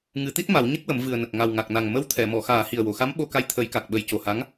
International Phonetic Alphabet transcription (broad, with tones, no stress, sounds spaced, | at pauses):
ŋ ɨ˨˩˦ t̪ i˦˥ t̚ m a˨˩˦ w ɲ ə˦˥ k̚ w ə˨˩˦ m v ɨ˨˩ ə̯ n ə˨˩ k̚ ŋ a˨˩ w ŋ a˨˩ k̚ n a˨˩ ŋ m ə˧˥ w t̪ʰ ɛ˨˩˨ m ɔ˨˩˨ x aː˨˩˦ h i˨˩ ə̯ w o˨˩˨ x a˧˥ m ɓ o˧ k a˧˥ j t̪ʰ ə˨˩˦ j k a˨˩ k̚ ɓ ə˨˩˦ j c o˨˩ h a˧˥ ŋ